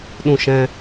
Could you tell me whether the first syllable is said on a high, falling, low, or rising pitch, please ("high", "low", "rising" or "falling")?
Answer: falling